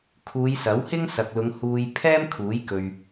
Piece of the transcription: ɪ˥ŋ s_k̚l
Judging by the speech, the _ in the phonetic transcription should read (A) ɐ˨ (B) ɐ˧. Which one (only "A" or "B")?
A